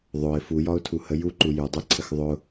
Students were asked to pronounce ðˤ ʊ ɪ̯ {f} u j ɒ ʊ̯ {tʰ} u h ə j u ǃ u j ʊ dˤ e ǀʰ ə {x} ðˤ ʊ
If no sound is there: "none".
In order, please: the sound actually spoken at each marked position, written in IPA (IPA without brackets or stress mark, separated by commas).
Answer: f, tʰ, x